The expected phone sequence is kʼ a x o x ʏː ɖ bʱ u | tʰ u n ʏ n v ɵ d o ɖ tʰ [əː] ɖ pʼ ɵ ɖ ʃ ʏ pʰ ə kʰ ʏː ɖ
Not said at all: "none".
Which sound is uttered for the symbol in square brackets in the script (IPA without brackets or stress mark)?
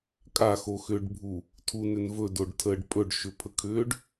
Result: əː